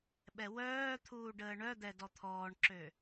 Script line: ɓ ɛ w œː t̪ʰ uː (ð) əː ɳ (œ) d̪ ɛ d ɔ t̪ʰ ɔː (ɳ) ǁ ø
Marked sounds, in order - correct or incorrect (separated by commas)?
incorrect, correct, correct